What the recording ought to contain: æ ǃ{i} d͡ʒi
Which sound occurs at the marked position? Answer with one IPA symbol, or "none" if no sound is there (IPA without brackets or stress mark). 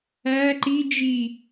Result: i